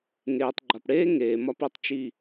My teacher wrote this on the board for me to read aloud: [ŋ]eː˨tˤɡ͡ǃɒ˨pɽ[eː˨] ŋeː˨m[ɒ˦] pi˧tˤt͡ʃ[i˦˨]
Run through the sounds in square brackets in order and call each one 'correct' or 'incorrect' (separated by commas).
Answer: correct, incorrect, correct, correct